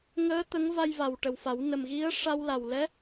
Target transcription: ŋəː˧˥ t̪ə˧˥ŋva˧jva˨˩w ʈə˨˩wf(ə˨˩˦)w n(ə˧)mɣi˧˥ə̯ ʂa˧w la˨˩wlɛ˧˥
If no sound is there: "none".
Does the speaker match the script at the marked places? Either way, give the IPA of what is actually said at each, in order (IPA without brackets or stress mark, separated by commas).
a˨˩˦, ə˨˩